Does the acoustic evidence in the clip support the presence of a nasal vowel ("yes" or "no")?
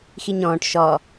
yes